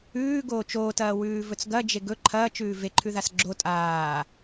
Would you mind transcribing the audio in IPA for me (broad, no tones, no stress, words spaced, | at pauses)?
ʉːɡoː t͡ʃoːtɐːwʉːvɵt͡s ɡɐd͡ʒeɡ ɵ ǃʰɐːt͡ʃʉː veǃʰʉðas ɡ͡ǁo tʼaː